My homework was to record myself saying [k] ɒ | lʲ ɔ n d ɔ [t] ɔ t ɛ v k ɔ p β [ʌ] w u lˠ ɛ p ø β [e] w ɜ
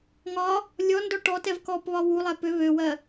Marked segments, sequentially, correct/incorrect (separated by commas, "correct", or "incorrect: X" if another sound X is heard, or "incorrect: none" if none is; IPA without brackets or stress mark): incorrect: ŋ, incorrect: ʈ, incorrect: ɒ, incorrect: ø